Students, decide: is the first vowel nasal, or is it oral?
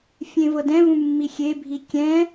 nasal